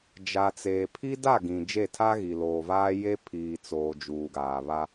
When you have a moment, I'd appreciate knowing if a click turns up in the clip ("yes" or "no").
no